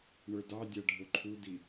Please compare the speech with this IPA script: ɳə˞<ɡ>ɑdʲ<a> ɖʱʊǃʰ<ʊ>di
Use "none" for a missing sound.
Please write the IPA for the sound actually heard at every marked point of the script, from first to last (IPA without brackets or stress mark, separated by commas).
d, a, u